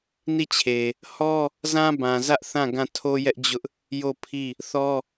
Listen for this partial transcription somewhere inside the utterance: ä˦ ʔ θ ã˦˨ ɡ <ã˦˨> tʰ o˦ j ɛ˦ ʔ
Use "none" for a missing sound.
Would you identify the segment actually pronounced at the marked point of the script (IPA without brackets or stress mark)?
ã˦˨